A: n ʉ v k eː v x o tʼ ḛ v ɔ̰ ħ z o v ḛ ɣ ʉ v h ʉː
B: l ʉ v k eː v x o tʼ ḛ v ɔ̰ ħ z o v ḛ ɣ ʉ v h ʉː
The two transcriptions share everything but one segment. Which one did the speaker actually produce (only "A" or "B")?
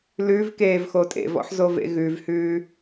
B